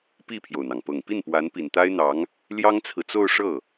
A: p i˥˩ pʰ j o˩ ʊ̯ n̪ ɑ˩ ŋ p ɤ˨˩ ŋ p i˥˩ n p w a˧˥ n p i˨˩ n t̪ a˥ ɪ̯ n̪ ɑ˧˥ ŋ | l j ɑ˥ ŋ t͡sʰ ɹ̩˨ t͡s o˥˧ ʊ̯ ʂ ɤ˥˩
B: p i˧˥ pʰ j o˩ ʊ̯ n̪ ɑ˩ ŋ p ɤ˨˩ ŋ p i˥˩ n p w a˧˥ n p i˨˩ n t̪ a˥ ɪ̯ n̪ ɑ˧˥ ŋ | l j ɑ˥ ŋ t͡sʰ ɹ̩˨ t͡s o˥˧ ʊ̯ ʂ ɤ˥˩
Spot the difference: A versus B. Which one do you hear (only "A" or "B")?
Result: A